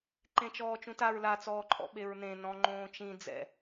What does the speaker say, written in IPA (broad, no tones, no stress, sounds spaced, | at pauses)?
ǃ ẽ t͡ʃ ɔː t͡ʃ ũ t a ɹ l a t͡s ɔː ǃʼ ɔ̰ ɓ e ɹ n ẽ n ɔ̃ ŋ͡ǃ õː t͡ʃ ĩ d͡z ɛ̰